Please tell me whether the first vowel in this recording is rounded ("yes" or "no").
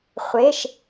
no